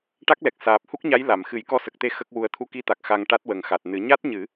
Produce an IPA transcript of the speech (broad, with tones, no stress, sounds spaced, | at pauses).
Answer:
ʈ a˦˥ k̚ l ɛ˨˩ k̚ s aː˨˩ p̚ h u˦˥ k̚ ɲ a˧˥ j l a˨˩˨ m x ɨ˨˩˦ j k ɔ˧ s ə˨˩ k̚ t̪ e˧˥ x ə˦˥ k̚ w u˧ ə̯ t̪ʰ u˧ k i˧ t̪ a˨˩ k̚ x a˧ ŋ ʈ a˦˥ t̚ w ə˨˩ ŋ x a˨˩ t̚ n ɨ˨˩˦ ɲ a˦˥ t̚ ɲ ɨ˨˩˦